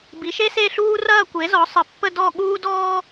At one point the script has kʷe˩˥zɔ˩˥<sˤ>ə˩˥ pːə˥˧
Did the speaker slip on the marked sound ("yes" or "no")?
no